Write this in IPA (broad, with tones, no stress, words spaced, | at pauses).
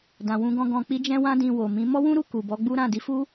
dã˨wũ˧ɡɔ̃˧ ɡɔ̃˧k͡pi˦d͡ʒɛ̃˦ wã˦dĩ˧wo˨mĩ˨˦ mɔ˦wũ˦ɾu˦˨ ku˨bɔ˨˦ɡ͡bu˦ ɾã˦˨di˨˦fu˦